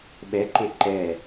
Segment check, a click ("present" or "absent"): present